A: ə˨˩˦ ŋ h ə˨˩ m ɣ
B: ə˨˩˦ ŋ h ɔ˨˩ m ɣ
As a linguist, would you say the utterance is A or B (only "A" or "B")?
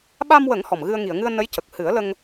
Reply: B